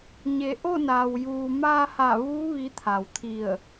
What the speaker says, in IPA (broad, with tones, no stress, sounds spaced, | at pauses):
ɲ e˩˧ ʔ o˥˨ n aː˩ w j uː˩ m aː˧ h a˧˩ ʋ uː˧˥ ʋ i˧˥ t̪ʰ a˩ w t̪ʰ i˧˩ ə̯